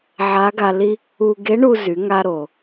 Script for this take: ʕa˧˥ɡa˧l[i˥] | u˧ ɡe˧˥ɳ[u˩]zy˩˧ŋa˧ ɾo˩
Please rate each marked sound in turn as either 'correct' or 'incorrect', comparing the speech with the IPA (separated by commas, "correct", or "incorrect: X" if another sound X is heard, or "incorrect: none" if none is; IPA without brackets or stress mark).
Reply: correct, incorrect: u˧